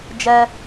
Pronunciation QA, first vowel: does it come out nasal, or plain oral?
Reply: oral